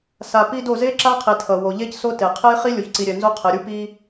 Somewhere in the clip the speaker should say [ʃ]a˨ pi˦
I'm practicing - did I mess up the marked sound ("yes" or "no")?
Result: yes